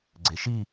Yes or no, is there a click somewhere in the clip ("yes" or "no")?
yes